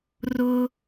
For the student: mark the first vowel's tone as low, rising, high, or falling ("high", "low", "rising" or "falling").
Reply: high